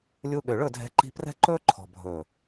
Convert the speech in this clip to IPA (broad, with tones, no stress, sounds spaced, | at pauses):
lʲ u˧ ɠ ø˨ ɭ ɵ˦˨ dʱ ɛ̤˧ ǃ i̤˧ p r ɛ̤˦ ǃ ɵː˦ ǃʰ ɔ̤˨ bʱ ɵ˨